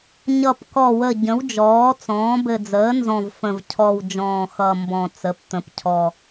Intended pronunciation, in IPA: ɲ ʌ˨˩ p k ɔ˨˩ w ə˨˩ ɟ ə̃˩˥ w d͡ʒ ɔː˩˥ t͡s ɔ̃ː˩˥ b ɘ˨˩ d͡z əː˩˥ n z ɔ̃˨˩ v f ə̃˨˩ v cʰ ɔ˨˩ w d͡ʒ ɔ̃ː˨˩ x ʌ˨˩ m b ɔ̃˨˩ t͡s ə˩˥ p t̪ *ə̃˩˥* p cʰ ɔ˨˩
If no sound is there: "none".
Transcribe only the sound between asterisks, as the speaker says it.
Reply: ə̃˩˥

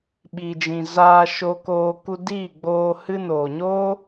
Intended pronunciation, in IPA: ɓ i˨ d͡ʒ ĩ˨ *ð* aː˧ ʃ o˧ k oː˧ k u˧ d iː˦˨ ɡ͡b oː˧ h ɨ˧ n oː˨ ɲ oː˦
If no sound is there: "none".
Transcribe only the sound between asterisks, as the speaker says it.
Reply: z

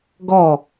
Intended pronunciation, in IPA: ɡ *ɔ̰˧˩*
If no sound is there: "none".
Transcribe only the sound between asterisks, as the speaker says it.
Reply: ɔ˧˩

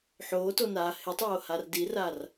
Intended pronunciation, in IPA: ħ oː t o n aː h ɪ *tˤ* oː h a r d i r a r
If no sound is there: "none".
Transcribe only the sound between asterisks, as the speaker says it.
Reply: tˤ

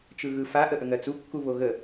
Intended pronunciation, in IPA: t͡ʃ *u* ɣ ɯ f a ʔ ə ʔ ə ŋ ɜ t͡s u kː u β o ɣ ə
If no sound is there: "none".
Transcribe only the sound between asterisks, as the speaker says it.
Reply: ɯ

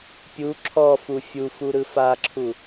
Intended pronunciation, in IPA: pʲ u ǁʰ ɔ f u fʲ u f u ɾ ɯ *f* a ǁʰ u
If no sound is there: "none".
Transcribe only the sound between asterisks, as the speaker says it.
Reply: f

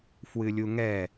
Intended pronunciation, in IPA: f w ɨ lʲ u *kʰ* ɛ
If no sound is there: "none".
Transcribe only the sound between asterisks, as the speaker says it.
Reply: ŋ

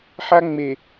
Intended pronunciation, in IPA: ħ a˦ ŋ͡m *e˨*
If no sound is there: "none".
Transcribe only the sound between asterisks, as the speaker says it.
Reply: e˨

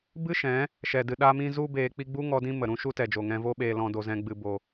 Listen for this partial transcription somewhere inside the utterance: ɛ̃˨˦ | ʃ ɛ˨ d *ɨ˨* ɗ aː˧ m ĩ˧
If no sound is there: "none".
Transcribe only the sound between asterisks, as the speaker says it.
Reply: ɨ˨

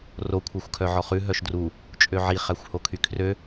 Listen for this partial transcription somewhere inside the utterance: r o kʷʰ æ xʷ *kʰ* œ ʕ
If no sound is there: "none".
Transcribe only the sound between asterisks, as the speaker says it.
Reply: kʰ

